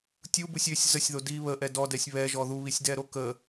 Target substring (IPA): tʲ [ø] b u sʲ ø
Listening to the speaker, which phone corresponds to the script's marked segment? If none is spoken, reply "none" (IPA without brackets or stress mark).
u